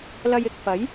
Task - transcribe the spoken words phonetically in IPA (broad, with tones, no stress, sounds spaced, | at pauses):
l ɐ˧ j ɪ˨ k̚ f ɐ˨˥ j